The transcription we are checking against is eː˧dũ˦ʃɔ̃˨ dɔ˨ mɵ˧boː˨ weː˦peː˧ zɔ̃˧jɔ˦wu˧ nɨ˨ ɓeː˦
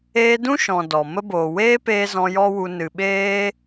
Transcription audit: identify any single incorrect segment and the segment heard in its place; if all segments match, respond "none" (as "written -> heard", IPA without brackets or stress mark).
ɵ˧ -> ə˧